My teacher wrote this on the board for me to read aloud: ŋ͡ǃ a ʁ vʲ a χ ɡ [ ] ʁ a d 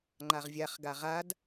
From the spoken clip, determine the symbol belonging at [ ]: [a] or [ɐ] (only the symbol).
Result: a